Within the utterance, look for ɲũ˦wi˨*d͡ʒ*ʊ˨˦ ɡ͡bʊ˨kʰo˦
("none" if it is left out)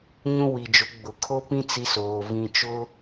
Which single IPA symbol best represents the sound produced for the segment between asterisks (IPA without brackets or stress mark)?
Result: d͡ʒ